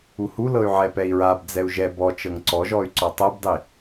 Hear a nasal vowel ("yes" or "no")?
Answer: no